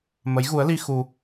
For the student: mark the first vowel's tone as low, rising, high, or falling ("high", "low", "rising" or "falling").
rising